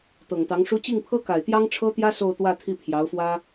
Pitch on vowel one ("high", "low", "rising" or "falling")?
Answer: low